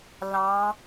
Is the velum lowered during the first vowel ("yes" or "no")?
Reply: yes